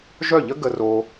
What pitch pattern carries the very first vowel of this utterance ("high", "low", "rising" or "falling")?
falling